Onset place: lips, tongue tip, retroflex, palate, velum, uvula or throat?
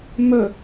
lips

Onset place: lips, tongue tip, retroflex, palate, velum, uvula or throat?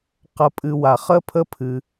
uvula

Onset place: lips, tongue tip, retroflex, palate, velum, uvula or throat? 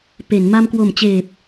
lips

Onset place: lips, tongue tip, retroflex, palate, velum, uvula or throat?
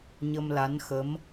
palate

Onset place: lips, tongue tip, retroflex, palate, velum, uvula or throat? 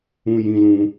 palate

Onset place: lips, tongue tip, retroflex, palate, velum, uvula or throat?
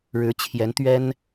retroflex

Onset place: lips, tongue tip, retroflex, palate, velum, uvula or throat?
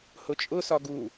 throat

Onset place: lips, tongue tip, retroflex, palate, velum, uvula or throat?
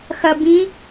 velum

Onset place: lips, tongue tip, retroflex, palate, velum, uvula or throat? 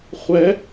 uvula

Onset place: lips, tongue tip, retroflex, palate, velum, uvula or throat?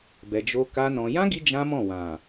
lips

